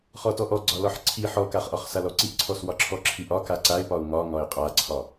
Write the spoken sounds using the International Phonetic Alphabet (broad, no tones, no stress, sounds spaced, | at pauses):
χ ɔ t ɔ ʔ ɔ ɡ͡ǀ ɒ l ɒ ħ ǀʰ i ħ ɔ k a χ ʔ ɒ χ s a l ɔ ǀ i ʔ ǀʰ ɔ s w ɒ ǁʰ ɔ ǁʰ i ʔ ɒ k a ǀ a ɪ̯ p ɒ ʊ̯ ŋ ɒ ŋ ɒ ɪ̯ qʼ a ǀʰ ɒ